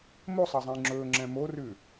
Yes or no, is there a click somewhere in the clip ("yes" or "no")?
yes